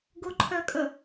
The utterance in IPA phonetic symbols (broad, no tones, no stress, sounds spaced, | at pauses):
ɡ ʊ ǃʰ œ kʼ ə